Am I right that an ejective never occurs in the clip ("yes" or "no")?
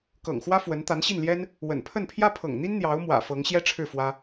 yes